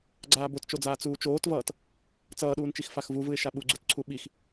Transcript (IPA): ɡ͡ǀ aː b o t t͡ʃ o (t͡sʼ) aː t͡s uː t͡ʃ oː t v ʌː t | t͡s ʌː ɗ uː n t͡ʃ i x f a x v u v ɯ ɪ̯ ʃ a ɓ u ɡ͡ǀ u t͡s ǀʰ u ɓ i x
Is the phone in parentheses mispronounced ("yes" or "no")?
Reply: yes